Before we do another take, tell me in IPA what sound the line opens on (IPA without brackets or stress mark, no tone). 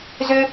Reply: z